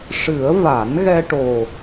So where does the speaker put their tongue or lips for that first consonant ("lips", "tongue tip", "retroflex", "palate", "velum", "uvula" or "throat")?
retroflex